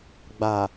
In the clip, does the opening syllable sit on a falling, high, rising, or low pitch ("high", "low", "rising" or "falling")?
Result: low